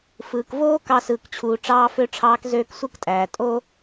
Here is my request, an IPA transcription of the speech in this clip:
fɯː˨kvoː˦ kɑ˧sɯː˨kt͡ɕʰuː˨ ʈ͡ʂɑː˧fø˧ʈ͡ʂʰɑː˧k zøː˦ksʷɯ˦ktʼæː˨ tʼo˦

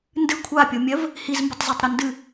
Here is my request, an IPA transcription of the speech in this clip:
ndɨ kʷʰapʲomʲɜv | hizmbətˤzɜtˤɾo ndɨ

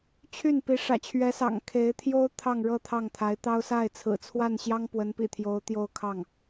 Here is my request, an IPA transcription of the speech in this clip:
t͡ɕʰy˥˩npi˧˥ ʂä̰˨˩t͡ɕʰɥɛ˧˥sɑ̰˨˩ŋ kʰe˧˥ɪ̯ t̪ʰjo˥ʊ̯ t̪ʰɑ˥˧ŋɻɤ˥˧ t̪ʰɑ˥˩ŋt̪ʰa˧˥ɪ̯t̪ɑ˥ʊ̯ sa˥˩ɪ̯t͡sʰɹ̩˨˩ t͡sʰwa˥˩nɕjɑ˥ŋ pwə˧˥npḭ˨˩t̪ʰjo˧˥ʊ̯ t̪jo˥˧ʊ̯kʰɑ˥˩ŋ

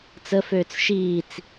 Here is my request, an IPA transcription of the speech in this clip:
t͡səføːt͡s ʃiːt͡s

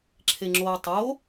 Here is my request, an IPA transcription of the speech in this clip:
ǁʰeŋ͡ǁoːtˤo

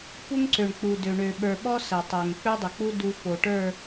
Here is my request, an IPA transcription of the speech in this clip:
pu˦ŋǀø˨ɳ k͡pu˨dø˨ɳø˨ ɓə˞˨ɓɔ˦ sə˨tˤo˨ŋ k͡pø˦dˤə˨k͡pu˦ du˦fo˨ʈə˞˦˨

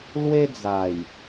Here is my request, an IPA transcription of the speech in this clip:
lwe˦d͡za˨˩j

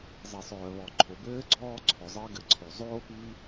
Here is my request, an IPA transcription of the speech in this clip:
zˤi˩sˤœː˩βɔ˩ ǃʰo˩bɘː˥ ɡ͡ǀɔː˥ǀʰœ˩zˤɘː˥ ɡɘ˩ǀʰo˩zˤoː˥ pi˥

